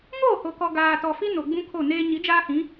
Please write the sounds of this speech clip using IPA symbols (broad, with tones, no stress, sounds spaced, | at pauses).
ŋ oː˦˨ h o˨ k ɔ˨ ɡ aː˨ t ɔ˨ f i˦ n o˨ ɡ͡b ũ˦ kʰ o˦˨ n eː˦ ɲ i˨˦ d͡ʒ aː˦ h ĩ˨˦